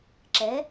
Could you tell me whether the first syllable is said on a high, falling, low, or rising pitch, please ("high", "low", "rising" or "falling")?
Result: rising